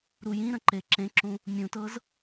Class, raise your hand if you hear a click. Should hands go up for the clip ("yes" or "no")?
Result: yes